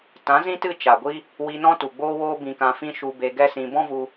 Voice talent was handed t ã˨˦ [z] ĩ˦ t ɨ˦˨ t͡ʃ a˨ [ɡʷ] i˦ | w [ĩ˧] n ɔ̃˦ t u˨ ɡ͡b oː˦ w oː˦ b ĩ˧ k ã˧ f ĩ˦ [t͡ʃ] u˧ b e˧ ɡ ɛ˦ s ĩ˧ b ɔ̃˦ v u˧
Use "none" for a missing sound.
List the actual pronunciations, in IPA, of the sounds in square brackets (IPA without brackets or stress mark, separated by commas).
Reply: z, ɡʷ, i˧, ʃ